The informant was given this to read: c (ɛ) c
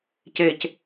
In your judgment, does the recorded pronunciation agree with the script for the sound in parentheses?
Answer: no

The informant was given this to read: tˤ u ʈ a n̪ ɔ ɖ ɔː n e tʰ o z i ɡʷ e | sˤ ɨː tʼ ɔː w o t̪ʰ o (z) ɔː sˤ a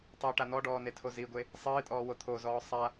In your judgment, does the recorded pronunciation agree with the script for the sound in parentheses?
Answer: yes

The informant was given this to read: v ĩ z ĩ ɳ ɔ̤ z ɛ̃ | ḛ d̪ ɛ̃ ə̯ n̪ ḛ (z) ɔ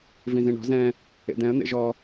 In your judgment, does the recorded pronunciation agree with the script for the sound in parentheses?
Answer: no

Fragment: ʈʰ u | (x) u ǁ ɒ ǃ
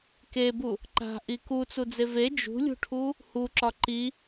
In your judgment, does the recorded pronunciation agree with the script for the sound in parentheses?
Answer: no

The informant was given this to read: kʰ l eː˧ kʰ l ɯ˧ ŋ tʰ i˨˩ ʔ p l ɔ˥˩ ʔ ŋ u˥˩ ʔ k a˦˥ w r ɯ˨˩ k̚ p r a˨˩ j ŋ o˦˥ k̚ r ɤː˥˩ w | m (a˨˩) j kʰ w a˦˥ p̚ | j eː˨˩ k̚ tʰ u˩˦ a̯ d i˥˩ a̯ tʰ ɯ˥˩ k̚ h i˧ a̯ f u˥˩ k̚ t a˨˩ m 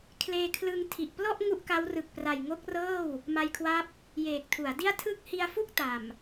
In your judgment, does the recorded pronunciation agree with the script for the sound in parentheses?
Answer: no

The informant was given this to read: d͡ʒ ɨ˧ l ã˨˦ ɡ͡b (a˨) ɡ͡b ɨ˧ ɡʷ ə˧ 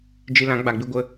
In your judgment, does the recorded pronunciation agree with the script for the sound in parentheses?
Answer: yes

